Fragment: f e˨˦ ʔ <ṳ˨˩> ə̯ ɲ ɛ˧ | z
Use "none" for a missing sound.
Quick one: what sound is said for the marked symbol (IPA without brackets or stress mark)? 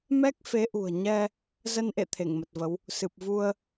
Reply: ṳ˨˩